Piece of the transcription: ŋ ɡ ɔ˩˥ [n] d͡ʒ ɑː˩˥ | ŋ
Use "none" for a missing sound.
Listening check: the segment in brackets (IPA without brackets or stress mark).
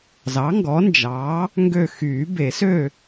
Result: n